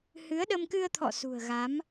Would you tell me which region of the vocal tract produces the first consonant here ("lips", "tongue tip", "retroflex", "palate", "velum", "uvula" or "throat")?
throat